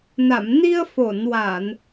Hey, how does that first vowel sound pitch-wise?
low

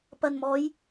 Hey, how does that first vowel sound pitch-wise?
low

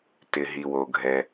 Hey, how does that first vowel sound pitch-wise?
low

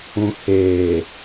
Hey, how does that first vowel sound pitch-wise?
low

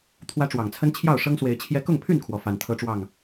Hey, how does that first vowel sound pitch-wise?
high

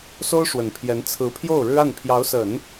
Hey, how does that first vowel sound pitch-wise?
high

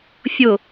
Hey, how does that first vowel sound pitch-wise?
low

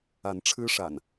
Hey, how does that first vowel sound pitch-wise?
rising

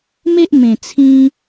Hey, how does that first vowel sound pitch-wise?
high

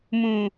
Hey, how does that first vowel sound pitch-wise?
low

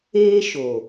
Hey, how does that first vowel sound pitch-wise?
high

